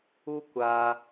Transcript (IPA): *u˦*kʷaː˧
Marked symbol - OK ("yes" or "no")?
yes